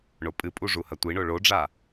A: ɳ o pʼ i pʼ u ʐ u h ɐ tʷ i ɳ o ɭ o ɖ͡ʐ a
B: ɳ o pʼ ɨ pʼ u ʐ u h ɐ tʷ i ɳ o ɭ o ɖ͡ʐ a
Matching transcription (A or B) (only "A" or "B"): B